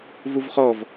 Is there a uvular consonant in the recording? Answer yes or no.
yes